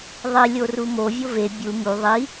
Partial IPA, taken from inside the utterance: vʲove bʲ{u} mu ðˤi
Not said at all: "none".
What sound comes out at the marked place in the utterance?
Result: u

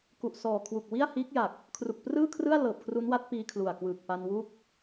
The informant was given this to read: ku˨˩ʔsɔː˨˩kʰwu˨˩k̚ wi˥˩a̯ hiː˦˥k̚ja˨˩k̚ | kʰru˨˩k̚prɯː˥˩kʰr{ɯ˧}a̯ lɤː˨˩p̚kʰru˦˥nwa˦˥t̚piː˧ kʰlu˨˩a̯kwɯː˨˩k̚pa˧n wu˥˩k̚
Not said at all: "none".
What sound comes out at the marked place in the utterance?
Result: ɯ˥˩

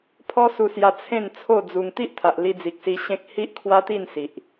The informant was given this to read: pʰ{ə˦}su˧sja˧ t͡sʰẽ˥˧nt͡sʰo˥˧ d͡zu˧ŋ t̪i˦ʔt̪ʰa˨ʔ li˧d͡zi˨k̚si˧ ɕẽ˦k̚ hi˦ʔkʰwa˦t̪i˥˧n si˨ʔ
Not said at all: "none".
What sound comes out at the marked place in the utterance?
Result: ɔ˦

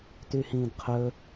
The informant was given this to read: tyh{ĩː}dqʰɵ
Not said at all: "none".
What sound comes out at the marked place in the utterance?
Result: ĩː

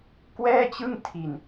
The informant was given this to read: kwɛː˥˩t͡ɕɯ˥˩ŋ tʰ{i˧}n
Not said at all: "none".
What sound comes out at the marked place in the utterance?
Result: i˧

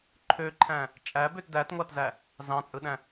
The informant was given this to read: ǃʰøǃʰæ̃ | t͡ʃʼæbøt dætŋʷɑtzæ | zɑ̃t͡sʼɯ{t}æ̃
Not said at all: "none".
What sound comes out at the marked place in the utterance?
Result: ɗ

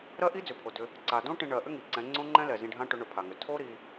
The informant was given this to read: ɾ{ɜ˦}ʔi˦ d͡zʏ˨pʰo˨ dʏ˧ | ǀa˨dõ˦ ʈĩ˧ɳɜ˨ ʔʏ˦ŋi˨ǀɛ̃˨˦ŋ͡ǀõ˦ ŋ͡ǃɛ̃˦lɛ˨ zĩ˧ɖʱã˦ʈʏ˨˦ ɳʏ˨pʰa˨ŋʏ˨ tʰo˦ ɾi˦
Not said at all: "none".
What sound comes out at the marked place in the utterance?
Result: ɜ˦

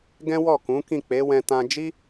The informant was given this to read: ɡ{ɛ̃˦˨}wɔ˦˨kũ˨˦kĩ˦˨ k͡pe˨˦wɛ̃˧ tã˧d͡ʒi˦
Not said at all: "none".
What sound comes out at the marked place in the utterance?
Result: ɛ̃˦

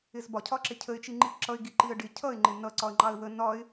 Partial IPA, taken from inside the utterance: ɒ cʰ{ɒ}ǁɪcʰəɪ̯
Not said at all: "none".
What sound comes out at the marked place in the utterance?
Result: ɒ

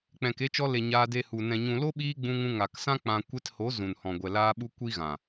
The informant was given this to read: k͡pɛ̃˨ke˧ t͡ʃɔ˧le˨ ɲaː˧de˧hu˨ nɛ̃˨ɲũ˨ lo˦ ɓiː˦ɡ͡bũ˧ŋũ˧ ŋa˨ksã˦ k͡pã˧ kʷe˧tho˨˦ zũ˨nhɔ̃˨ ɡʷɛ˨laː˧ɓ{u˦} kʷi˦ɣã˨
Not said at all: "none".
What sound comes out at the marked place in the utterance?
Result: u˧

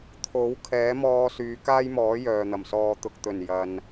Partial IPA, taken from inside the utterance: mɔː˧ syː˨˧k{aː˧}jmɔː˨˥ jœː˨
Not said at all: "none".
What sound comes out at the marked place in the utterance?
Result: aː˥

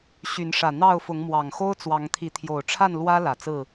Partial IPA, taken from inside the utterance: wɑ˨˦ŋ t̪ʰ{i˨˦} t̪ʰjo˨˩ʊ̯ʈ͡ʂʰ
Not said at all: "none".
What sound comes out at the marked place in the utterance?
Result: i˨˦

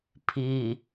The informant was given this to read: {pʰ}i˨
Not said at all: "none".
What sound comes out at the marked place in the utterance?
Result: pʰ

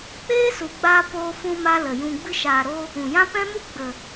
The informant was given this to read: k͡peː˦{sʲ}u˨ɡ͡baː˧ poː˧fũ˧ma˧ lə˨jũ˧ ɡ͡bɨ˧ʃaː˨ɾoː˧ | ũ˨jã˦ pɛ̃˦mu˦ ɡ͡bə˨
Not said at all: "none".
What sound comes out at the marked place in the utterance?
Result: s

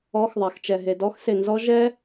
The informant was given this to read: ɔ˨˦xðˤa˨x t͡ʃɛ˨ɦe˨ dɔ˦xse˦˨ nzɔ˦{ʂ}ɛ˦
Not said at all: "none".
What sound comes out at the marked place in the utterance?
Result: ʒ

